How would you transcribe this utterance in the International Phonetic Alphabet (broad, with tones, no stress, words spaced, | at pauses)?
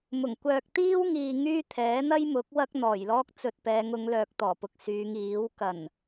mʊ˨˩ŋkʷœː˧k̚ t̪iː˥wŋiː˨ ŋyː˥t̪ʰɛː˨˥ n̪ɐ˥jmʊ˨˥k̚ wɐ˥k̚n̪ɔː˨˩jlɔː˥k̚ t͡sɵ˧t̚pɛː˨˧ŋʊ˨˧ŋ lœː˨k̚t̪ɔː˨˩pʊ˨k̚ syː˨˧ŋiː˨˥w kɐ˨˩n